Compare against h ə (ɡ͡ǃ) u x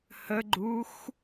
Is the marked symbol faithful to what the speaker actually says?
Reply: yes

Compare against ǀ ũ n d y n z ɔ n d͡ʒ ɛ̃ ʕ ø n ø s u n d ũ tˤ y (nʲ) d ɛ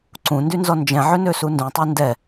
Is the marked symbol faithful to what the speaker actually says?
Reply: no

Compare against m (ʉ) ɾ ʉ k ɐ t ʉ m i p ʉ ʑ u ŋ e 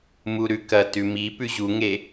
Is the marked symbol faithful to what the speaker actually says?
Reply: no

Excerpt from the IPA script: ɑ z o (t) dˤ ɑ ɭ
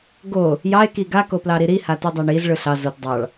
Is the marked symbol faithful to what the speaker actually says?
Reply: yes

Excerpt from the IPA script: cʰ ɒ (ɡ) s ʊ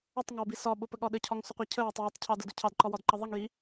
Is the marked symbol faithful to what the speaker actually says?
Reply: no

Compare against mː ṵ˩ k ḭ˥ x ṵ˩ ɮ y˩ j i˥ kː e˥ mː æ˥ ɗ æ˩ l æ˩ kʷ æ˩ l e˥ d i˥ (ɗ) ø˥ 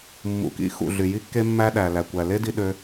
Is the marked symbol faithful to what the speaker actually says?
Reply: yes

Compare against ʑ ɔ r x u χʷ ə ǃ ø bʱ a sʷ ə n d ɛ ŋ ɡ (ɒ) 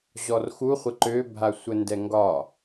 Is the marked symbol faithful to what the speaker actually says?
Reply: yes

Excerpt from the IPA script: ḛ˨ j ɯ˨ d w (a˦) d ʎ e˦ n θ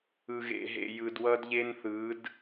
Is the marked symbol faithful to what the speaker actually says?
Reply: no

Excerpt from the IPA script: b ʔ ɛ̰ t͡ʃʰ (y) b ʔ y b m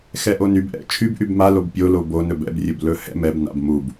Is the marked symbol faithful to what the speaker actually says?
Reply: yes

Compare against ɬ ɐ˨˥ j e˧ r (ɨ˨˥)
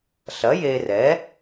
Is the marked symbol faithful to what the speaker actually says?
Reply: no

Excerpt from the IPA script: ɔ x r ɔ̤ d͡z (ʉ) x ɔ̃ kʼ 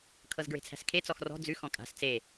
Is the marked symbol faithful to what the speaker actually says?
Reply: yes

